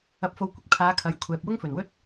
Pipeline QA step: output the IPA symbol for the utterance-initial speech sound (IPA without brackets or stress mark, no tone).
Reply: ɐ